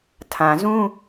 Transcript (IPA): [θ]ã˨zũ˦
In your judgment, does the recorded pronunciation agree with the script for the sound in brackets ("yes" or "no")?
no